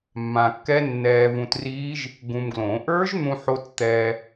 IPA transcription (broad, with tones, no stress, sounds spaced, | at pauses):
mː ã˧ kː ɛ˦˥ nː ɛː˧ v ũ˧ t r iː˦˥ ʒ | ɡ ũ˧ m ɡ l õ˨˩˦ ʔ ə˞˦˥ ʒ n̪ ũ˧ ħ o˧ t t̪ ɛː˧